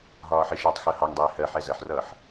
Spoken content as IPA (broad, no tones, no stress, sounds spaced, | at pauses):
ɦ ɒː ħ ɪ ʃ ʌː tˤ x ɜ h ɑ ŋ dˤ ɪː h ɜ ħ ɛ z ɜ ħ r ʌː ħ